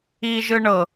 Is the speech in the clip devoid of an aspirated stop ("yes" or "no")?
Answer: yes